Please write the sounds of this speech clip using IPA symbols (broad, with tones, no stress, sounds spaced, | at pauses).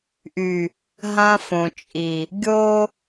ʔ y˨ | ɦ ã˦ f õ˨ t͡ʃʼ i˨ | ɡʲ o˦